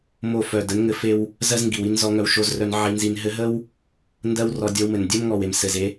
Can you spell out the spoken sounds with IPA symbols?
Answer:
m o˦˨ f œ˨ d ə˨˦ n ŋ ɘ˧ f e˦ w | z ɜ˦ z ŋ ɡ i˨ w i˦ n z ɔ˧ ŋ œ˧ w ʃ o˧ z r œ˧ n ʕ i˧ n z i˧ n ɦ ɘ˧ ɦ ə˦ w | n d ɜ˦ w r ɔ˧ dʲ ɔ˧ w m ɘ˨ n dʲ ɜ˦ m ŋ ɔ˨ w e˨ m s ɘ˨ z e˦

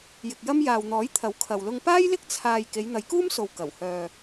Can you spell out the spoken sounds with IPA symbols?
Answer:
j ɪ˨ k̚ j ɐ˥ m j aː˨ w n̪ ɔː˨˥ j t̪ʰ ɐ˨˥ w kʰ ɐ˨ w l ʊ˧ ŋ p aː˥ j l ɪ˥ k̚ t͡sʰ aː˧ j k e˨˧ j n̪ ɐ˨˧ j k uː˥ m s o˨ w k ɐ˨˩ w h œː˨

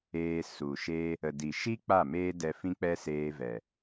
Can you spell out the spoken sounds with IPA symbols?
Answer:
eː˧ s u˨ ʃ e˦ | ə˨ d i˨ ʃ i˦ k͡p a˦˨ m eː˦ d ɛ˧ f ĩ˦ k͡p ɛ˦ s eː˧ v ɛ˨

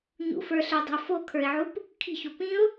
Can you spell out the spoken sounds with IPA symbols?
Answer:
ɲ ṵ f ə˞ ɬ ə˞ dˤ ə̤ ʊ̯ f o kʰ ə˞ ɪ̯ ʕ u p | kʰ i̤ ç o p ĩ ʊ̯

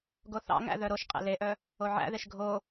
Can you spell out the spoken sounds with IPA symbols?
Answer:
ɡ o θ ɑ̰ ŋ æ̰ ð œ ɾ o ʃ qʼ ḛ l e ʔ œ | o ʕ æ̰ ð e ʃ ɡʱ o

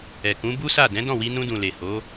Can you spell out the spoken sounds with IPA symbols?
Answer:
ɛ˨ k ũ˨˦ b u˦ s a˦˨ d ɛ̃˨˦ d ɔ̃˦˨ w i˧ n ũ˧ d ũ˨ l e˨ h o˨˦

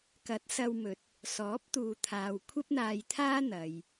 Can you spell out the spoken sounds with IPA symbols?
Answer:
k ɐ˨˥ t̚ s ɐ˧ w m ɵ˨ t̚ | s ɔː˨˥ p̚ t̪ uː˨ t̪ʰ aː˨ w kʷʰ ɐ˥ p̚ n̪ aː˧ j t̪ʰ aː˥ n̪ ɐ˨ j

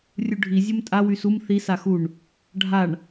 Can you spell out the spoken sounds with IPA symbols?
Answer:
rʲ u ɖʱ i zʲ u m tʼ a w y s u m θ i s a x u ɳ | ɖʱ a ɳ

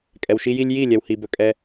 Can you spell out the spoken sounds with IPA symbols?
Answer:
kʼ ɛ˨ w ʃ i˧ j i˧ lʲ j i˦˨ lʲ ɛ˨ w h i˨ b ɵ˨ kʼ ɛ˧

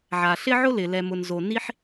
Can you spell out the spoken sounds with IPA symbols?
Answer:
ʕ a˩ ɬ ɪ˥ ʕ ʊ˥ l ɪ˩ l ɛ˩ m ʊ˩ n z o˩ n i˥ ħ

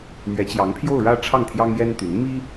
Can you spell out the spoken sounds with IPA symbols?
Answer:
m ɥ ɛ˧˥ t͡ɕ j ɑ˧˥ ŋ pʰ j o˥˧ ʊ̯ ɻ ä˥˧ ʈ͡ʂʰ ɑ˥˩ ŋ t̪ʰ j ɑ˥ ŋ j ɛ˥ n t̪ y˧˥ n m i˥

